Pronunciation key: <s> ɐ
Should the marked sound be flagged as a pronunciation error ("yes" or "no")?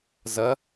yes